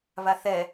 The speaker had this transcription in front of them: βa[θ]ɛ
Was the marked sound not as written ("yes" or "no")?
no